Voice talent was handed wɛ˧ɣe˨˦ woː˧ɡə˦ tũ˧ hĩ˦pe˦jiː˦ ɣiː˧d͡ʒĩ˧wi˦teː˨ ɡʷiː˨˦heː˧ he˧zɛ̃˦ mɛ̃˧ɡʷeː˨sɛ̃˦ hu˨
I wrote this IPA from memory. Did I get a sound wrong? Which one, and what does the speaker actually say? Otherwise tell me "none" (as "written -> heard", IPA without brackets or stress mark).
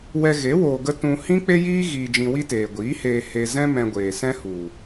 p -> k͡p